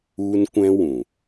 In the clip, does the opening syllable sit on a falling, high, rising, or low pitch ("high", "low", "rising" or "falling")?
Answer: high